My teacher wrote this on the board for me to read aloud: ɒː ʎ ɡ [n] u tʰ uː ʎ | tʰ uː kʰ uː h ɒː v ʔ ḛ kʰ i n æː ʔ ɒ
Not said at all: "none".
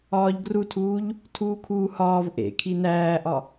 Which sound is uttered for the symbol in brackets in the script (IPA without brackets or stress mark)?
r